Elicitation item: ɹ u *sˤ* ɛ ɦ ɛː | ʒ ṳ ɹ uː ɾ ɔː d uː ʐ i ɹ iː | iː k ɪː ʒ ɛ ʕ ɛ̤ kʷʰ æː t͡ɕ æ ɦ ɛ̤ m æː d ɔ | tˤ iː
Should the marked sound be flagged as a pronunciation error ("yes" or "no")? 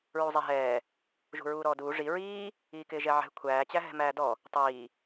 yes